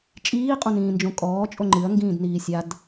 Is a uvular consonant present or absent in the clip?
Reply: present